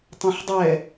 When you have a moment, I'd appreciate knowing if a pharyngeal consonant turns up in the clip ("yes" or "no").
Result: yes